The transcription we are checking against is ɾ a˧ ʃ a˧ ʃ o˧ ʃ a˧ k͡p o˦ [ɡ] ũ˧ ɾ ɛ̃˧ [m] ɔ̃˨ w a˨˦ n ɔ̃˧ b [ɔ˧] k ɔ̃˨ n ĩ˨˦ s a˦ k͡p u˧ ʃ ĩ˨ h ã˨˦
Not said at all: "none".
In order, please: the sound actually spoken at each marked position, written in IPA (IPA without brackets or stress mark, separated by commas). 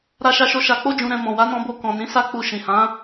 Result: d͡ʒ, m, o˧